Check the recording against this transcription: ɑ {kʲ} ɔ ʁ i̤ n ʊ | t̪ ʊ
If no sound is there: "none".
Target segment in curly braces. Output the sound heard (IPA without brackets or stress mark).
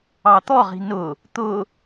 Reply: t̪